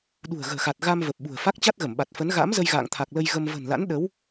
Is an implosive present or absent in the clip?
present